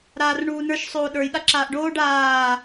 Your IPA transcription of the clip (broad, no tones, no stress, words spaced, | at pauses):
ɾaːrɳuːnə˞ʃ sˤoːɗə˞j ɗaǁaːʔɖoːɖ aː